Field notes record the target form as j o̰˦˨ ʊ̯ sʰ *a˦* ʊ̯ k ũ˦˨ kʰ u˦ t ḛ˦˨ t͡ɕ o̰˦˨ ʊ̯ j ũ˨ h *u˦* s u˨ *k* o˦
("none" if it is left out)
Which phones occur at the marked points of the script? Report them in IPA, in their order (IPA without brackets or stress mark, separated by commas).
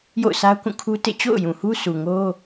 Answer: a˦, u˦, ŋ